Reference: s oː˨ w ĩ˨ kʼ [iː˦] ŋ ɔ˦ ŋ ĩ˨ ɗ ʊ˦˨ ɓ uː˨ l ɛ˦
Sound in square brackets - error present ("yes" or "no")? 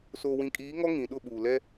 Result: yes